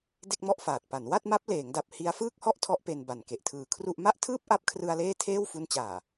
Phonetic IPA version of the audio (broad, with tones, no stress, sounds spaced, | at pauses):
d e˥˩ k̚ m ɔ˥˩ ʔ f aː˨˩ t̚ p a˩˦ n w a˥˩ t̚ m a˦˥ p̚ l eː˩˦ ŋ d a˨˩ p̚ h i˦˥ a̯ f ɯː˥˩ k̚ h ɔ˥˩ ʔ tʰ ɔ˦˥ ʔ p e˧ n b a˨˩ n k e˨˩ ʔ tʰ ɯː˧ kʰ r u˥˩ ʔ m a˥˩ ʔ tʰ ɯː˥˩ p̚ ʔ a˦˥ p̚ kʰ r ɯ˧ a̯ l eː˥˩ tʰ eː˥˩ w f u˦˥ n t͡ɕ aː˨˩